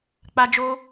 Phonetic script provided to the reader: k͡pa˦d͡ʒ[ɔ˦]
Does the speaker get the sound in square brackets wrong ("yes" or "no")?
yes